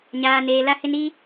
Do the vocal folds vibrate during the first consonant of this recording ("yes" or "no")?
yes